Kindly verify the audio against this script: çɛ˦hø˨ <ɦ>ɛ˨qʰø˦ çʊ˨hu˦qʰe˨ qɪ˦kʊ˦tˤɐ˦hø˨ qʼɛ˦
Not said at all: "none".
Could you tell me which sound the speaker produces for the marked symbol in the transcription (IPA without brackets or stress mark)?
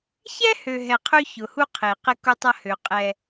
ɦ